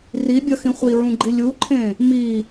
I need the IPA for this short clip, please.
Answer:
r i bʲ ʌ x ĩ χʷ i ɹ ũ ɡ͡ǃ i lʲ u ǃʰ ẽ | m i

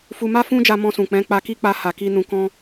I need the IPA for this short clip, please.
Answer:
f u˧ m a˦ f ũ˦ d͡ʒ a˧ m ɔ̃˧ s ũ˨ k͡p ɛ̃˨˦ k͡p a˧ k i˦ k͡p a˧ h a˨ k i˧ n ũ˧ k ɔ̃˦

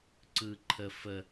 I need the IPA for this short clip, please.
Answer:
ǀ ɯ ǃʰ ə f ə

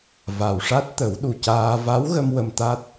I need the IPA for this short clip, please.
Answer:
v a˨˩ w ʂ a˦˥ t̚ t̪ ə˨˩˦ w ɗ u˨˩ c aː˧ v a˧˥ w ɣ ə˧ m w ə˧ m t̪ a˦˥ t̚

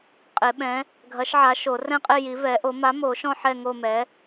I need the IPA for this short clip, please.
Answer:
qʼ e˨˩˦ ɓ ɛ̃˨˥ | ɡʱ ɐ˨˥ ʃ ʕ a˨˥ ʃ o˨˩˦ r ɛ̃˦˨ qʼ e˦˨ j i˨˥ v ɛ˨˥ ʔ o˨˥ m a˨˥ m o˨˩˦ ʃ ɔ̃˦˨ ħ ɛ˦˨ ŋ o˦˨ m ɛ˨˥

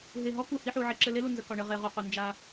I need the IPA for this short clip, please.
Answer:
ɦ e˨ ɦ ɔ˦ k u˨ h i˦ ħ u˨ ʕ e˦ ǁ ɘ˦ l e˦ l u˨ n z ə˨ k ɒ˨ ɳ ɘ˨ ʁ e˨ ʁ u˨ q u˨ n d͡ʒ a˦

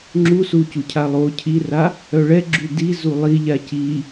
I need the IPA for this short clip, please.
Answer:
ŋ͡ǁ u s u c u cʰ a lˠ o cʰ i r a | œ ɭ ɛ ɡ͡ǁ y d i z u lˠ i ʎ a c i

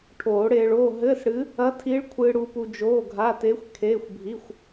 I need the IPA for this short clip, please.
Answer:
ʈʰ oː˨˩˦ ɽ eː˧ ɭ oː˧˥˧ ɦ ɘː˧˥˧ s ɽ ɨ˧˥ | ɐ˧˥ tʰ i˧˥ ɭ kʷʰ ɨː˧ ɽ u˧ p u˧ d͡ʒ oː˧˥˧ ɡʱ a˧˥˧ t e˧˥ xʷ kʰ eː˧˥˧ xʷ bʱ i˧˥˧ xʷ

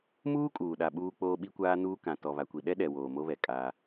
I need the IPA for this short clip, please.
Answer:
m uː˦ kʼ uː˨ ɗ a˨ ɓ uː˦ k͡p oː˦ ɓ i˦ kʷ aː˦ n uː˦ k ã˨ t ɔ˨ β a˨ kʷ i˨ ɗ ɛ˦ ɗ ɛ˨ w oː˨ m o˦ β ɛ˨ kʼ aː˦

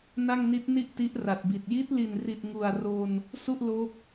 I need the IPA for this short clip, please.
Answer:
n a˥˩ ŋ n i˦˥ t̚ n i˥˩ ʔ t i˦˥ ʔ r a˨˩ t̚ b i˨˩ t̚ j i˦˥ t̚ l i˨˩ n r i˨˩ t̚ ŋ u˨˩ a̯ r o˧ n | s u˥˩ ʔ l o˦˥ k̚

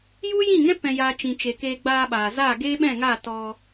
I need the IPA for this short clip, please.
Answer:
j u˦ j ĩ˦˨ ŋ ɛ̃˦ p ɛ̃˦ j aː˦ t͡ʃ ĩ˧ t͡ʃ e˧ k eː˧ ɡ͡b aː˧ ɓ aː˨ z aː˦˨ ɡ eː˦ ɓ ɛ̃˦˨ ŋ aː˦˨ t ɔ˧

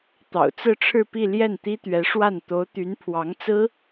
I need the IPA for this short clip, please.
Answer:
t̪ ɑ̰˨˩ ʊ̯ t͡s ɹ̩˥˧ ʈ͡ʂʰ ɻ̩˥˧ p i˥˧ l j ɛ˥˩ n t̪ i˥ t̪ ɥ ɛ˧˥ ʂ w a˥˩ n t̪ o˧˥ ʊ̯ t̪ y˧˥ n pʰ w ɑ˧˥ ŋ t͡s ɹ̩˥

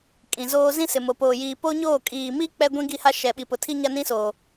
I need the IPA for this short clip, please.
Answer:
kʼ ĩ˨ z oː˦ z ĩ˦ s ɪ˨ m o˨ p oː˨ j iː˨ p o˦ ɲ oː˦˨ kʼ iː˨ m i˦ k͡p ɛ˦ ɡʷ ĩ˦ ɡ i˦ h a˦ ʃ ɛ˨ ɓ i˨ p ʊ˨ tʰ i˦ ɲ a˦ n ĩ˦ s oː˨

